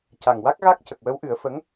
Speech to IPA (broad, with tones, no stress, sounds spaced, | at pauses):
c a˨˩ ŋ w a˦˥ k̚ ɣ a˦˥ k̚ c ə˨˩ k̚ w ə˧˥ w ʔ ɨ˨˩˦ ə̯ f ə˧˥ ŋ